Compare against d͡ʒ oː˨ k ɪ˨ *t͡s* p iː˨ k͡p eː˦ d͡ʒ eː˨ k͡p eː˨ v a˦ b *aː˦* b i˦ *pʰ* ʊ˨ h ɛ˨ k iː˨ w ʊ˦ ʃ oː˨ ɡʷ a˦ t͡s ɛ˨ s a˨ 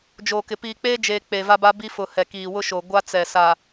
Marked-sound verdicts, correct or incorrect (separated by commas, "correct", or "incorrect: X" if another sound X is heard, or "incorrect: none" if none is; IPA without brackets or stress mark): incorrect: none, incorrect: a˦, incorrect: f